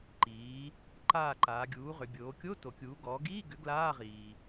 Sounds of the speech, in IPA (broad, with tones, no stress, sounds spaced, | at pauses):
ǃ iː˩˧ | ǃ aː˦˨ ǃ aː˩˧ ɡʲ uː˩˥ ʁ ʏ˩˧ bʲ oː˩˧ kʲ o˧˥˧ t o˩˧ kʲ uː˩˥ ɡ ɔː˩˥ ɡ iː˧˥˧ ɡ ʏ˩˥ ɡ l aː˧˥˧ ʁ iː˩